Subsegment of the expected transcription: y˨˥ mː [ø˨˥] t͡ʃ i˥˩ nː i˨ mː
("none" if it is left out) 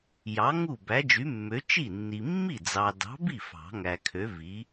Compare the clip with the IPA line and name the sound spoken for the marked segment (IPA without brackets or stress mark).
ø˨˥